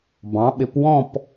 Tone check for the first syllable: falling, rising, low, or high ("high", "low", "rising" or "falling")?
rising